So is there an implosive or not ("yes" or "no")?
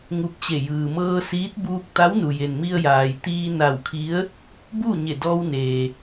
no